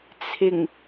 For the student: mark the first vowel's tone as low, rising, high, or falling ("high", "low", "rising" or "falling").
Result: low